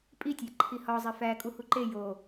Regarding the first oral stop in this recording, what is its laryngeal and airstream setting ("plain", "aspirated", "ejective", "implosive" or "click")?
ejective